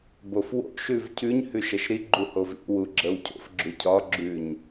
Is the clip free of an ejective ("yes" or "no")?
yes